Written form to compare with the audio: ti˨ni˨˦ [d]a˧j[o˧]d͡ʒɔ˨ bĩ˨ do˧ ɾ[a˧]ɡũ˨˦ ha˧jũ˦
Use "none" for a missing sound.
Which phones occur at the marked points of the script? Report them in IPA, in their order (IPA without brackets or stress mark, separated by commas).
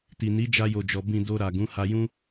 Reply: d͡ʒ, o˨, a˨